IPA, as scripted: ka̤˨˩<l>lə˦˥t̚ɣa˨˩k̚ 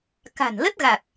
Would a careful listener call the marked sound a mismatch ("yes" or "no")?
yes